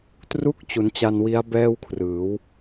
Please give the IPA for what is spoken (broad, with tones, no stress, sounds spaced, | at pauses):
t r u˦˥ k̚ t͡ɕ u˩˦ n t͡ɕ a˧ n w i˦˥ a̯ b ɛː˥˩ w kʰ r ɯː˩˦ w